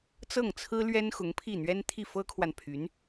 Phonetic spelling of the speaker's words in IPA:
t͡s ɤ˥˩ ŋ t͡sʰ ɹ̩˥ l ɥ ɛ˥ n x ʊ˧˥ ŋ pʰ i˥˩ n̪ ɥ ɛ˥ n t̪ʰ i˥˩ f ɤ˥ kʰ w a˨ n pʰ y˧˥ n

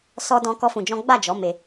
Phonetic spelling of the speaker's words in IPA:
s ɔ˦ d ɔ̃˦ k ɔ˦ f ũ˧ d͡ʒ ɔ̃˦ ɡ͡b a˦˨ d͡ʒ ɔ˨˦ m e˧

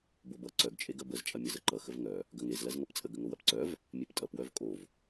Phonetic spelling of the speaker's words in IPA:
b o b ʌ ǀ œ ɡ t͡ʃʼ e ɡ ɐ b ə z t͡ʃʼ ɐ mʲ ʌ z ə ǃ ʌ x ə v ŋ œ | ɡ ɐ ŋ e z l ɐ z ŋ ɐ p t͡sʼ ə ɡ ə ŋ o w ɐ p ǀ œ v | mʲ e p tʼ ʌ p w œ v kʼ o v

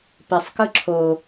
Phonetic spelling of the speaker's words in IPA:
p ɪ sˤ k ɯ ǁʰ o

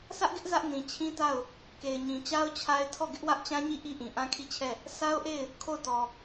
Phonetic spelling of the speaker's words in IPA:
s ä˦ ʔ ɡ ɪ˦ ʔ z ä˦ ʔ n ĩ˨ t͡ɕʰ ĩ˦ t a˦˨ ʊ̯ | k e˨ ɪ̯ ɲ ĩ˨ t͡ɕ a˦ ʊ̯ t͡ɕʰ a˦ ɪ̯ tʰ ɔ˦˨ ɡ ɪ˦ ʔ w ä˦ ʔ t͡ɕ ã˦ ɲ i˦˨ ʔ i˦ ʔ ĩ˨ ʔ ã˦ kʰ i˦˨ t͡ɕʰ ɛ˦˨ | s a˦ ʊ̯ ʔ e˦˨ ɪ̯ | kʰ o˦˨ ʊ̯ t ɔ˨

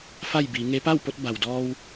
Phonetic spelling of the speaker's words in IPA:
f a˥˨ j b iː˩˧ ŋ e˧˥ p a˥˨ w p o˧ t̚ b a˩ w d ɔː˧ w

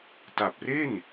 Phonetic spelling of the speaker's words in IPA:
t a˨˩ p̚ r e˥˩ n

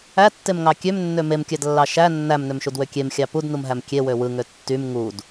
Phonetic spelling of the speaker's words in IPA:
æ tː e m ŋ ɑ kʲ ø m nː ø m e m kʲ æ d lː ɑ ʃ æ nː æ m n ø m ʃ u d w ø kʲ e m xʲ ɑ p u d n u m ɦ æ m kʲ e w ø w ɯ ŋ ø tː y m ŋ u d

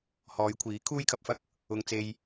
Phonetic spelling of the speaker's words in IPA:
h ɔː˨˧ j kʷʰ iː˨˥ kʰ uː˥ j kʰ ɐ˧ p̚ f ɐ˥ k̚ | ʊ˧ ŋ t͡s e˧ j

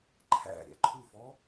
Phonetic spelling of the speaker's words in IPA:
ǃʰ æ̰ ɾʲ æ̰ ǃʰ u f ɔ

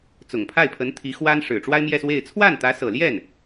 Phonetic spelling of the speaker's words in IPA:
t͡s ʊ˨˩ ŋ pʰ a˥˩ ɪ̯ pʰ ə˧˥ n t̪ʰ i˧˥ x w a˥ n ʂ ɻ̩˨˩ ʈ͡ʂ w a˥ ɪ̯ m j ɛ˥˧ s w e˥˧ ɪ̯ t͡sʰ w a˥˩ n t̪ ä˧˥ s ɤ˨˩ l j ɛ˥˩ n

